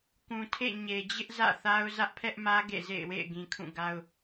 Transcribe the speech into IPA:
kũ˨tʰḛ˦˨ ɲe˨d͡ʑɪ˦ʔ zä̰˦˨θa˦ʊ̯ zä˦ʔpʰɛ˦ʔmä˦ ɡḛ˦˨zḛ˦˨ɪ̯wḛ˦˨ɪ̯ ɡĩ˨ kʰũ˦˨ɡa˦ʊ̯

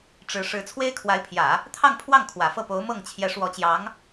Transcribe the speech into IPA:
ʈ͡ʂɻ̩˧˥ ʂɻ̩˧˥t͡sʰwe˥ɪ̯kʰwa˧˥ɪ̯pʰjä˨˩˦ | t̪ʰɑ˥˧ŋ pʰwɑ˥˩ŋ kʰwä˨˩fɤ˥˩po˧˥ʊ̯ mɤ˥˩ŋ t͡ɕʰjɛ˧˥ʂwɔ˧˥t͡ɕjɑ˧˥ŋ

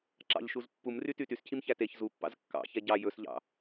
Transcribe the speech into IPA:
ǁɑ̰ʎʃuz pːumryty tyscʰimçæ teç zupːɑ̰z kːɑ̰çɛ ɟɑ jɵsʎɑ̰

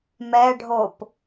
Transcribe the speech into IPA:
mɛ ɖʱop

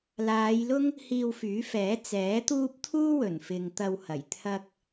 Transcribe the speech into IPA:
laː˨˧jlʊ˥ŋ | hiː˧wfyː˨˥fɛː˨˥ t͡sɛː˨˥t̪uː˥p̚ t̪ʰuː˥wɵ˨˩nfɪ˨ŋ t̪ɐ˧whɐ˨˩j t̪ʰɐ˧k̚

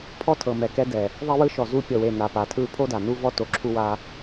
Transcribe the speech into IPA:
pʰɔ˦ tʰɤ˨mɛ˨kɛ˧ dɛ˨ | ðˤe˦ wɯ˧ʃɔ˨ zu˧pʲɤ˨we˨ na˨pa˨tʰɯ˧ pʰo˦da˨ nu˦vɔ˦ to˧ǁʰu˦wa˦

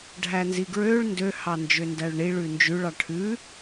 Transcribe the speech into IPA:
ɖʱænziɡɹøɭ ndø hɑnd͡ʒøndæɭɳiɭ ʉnd͡ʒʉɭ ɑʈʰʉ

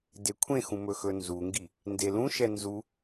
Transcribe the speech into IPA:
dekʷʰẽxũ mɵxɵnzuŋɡi | ndelũʃɛ nzu

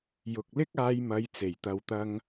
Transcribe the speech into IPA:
jʊ˨k̚lɪ˥k̚aː˧jmɐ˨˧j t͡se˨˩jt̪ɐ˨wt̪ɐ˧ŋ

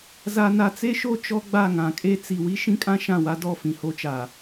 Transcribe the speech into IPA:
za˨na˨t͡se˦ ʃo˦ t͡ʃɔ˦ɡ͡ba˦˨ŋã˨kʼe˦ t͡si˨wi˦ ʃĩ˦kʼã˦ ʃã˦˨wa˦dɔ˦˨ fĩ˨ho˦t͡ʃa˨

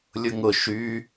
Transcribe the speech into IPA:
lʲʊŋʊ ʃy

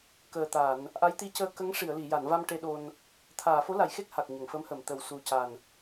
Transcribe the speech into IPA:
kəː˨˩t̪a˨˩˨n | ʔa˧˥jt̪i˧˥cəː˧ kə˧˥ŋ ʂi˨˩˨ə̯li˨˩˨ja˨˩˨nva˧m ʈe˧ɗo˧n | t̪ʰaː˨˩˨fo˧˥la˨˩˨jxe˦˥k̚ ha˨˩k̚ɲə˨˩˨ŋfə˧˥mhə˨˩˨m t̪ə˨˩wsu˨˩ca˨˩n

